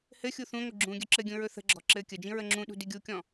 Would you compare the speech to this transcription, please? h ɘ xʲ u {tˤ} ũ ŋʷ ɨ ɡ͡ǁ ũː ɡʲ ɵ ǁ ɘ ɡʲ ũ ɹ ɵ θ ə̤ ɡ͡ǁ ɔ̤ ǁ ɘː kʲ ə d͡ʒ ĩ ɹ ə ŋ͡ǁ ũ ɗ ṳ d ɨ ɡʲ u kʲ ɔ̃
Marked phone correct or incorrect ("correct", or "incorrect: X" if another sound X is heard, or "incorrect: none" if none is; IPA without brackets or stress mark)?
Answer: incorrect: θ